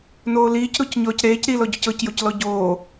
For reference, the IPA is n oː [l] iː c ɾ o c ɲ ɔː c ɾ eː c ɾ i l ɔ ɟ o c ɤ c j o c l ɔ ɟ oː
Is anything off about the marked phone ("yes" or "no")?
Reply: no